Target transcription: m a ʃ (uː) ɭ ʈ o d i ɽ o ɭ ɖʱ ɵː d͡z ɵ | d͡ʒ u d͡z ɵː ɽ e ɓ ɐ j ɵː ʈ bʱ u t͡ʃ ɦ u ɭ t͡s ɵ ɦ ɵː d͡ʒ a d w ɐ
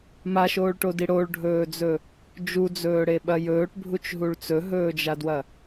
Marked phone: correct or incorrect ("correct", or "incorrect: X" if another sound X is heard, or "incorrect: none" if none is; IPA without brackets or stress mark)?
incorrect: oː